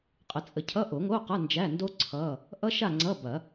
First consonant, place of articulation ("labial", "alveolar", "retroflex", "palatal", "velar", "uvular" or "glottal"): uvular